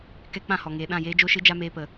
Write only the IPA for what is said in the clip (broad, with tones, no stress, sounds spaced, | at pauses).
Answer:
k ɛ˦ k͡p ã˦˨ h ɔ˨ ŋ eː˨ ɗ ã˦˨ j eː˦ d͡ʒ o˦ ʃ ɨ˦ d͡ʒ a˦ m eː˧ p ə˨